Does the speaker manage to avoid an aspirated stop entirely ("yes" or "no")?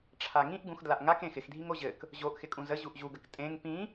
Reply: no